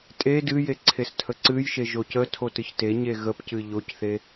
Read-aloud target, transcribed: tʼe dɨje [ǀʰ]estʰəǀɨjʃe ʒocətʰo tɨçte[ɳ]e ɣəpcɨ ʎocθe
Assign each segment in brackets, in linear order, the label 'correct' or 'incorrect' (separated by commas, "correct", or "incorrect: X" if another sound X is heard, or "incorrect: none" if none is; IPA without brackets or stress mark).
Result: correct, incorrect: ɲ